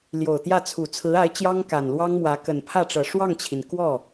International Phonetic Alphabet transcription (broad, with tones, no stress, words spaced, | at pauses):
ljo˨˩ʊ̯t̪jä˥˩ t͡sʰu˨˩t͡sʰɹ̩˧˥a˧˥ɪ̯ t͡ɕjɑ˥ŋka˨˩nlwɑ˥ŋmwä˧˥ kə˨˩npʰä˥˩ʈ͡ʂɤ˨˩ ʂwɑ˥˩ŋt͡ɕʰi˩n kwɔ˥˩